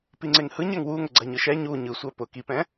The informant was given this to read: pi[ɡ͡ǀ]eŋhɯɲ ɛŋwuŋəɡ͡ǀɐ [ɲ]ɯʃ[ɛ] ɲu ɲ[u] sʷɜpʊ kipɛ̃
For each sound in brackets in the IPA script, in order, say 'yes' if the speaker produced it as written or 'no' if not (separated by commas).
no, yes, yes, no